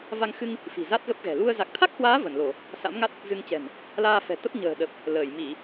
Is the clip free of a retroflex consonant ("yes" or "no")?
yes